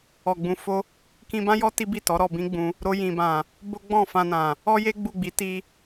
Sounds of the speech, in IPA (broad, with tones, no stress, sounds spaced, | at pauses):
ɔ˨ ɡ͡b ũ˨˦ f o˦ | k ĩ˧ b ã˦ j ɔ˦ t i˦ b i˦˨ t ɔ˨˦ ɾ ɔ˧ b ĩ˦ ɡ͡b ũ˧ | ɾ o˧ j ĩ˨ b ã˨ | b o˦ ɡ͡b ɔ̃˦˨ f ã˧ n ã˨ | ɔ˦ j e˦ ɡ͡b u˦˨ ɡ͡b i˨˦ t i˦